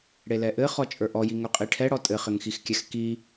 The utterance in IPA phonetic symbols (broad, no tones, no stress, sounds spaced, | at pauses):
ɽ e l ɛ ʔ ɘ χ ɔ t͡ʃʼ ə˞ ʔ ɔ j i ŋ ɵ qʼ i ʈʰ ɛ ɽ ɔ tʼ ɘ χ ɘ ŋ x i x kʲ ɛ x k i